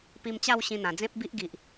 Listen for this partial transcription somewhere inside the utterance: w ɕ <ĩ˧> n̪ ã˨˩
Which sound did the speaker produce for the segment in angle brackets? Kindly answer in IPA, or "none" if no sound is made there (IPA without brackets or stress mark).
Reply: ĩ˧